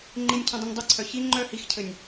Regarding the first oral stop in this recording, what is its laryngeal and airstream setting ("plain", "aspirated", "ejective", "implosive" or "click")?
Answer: click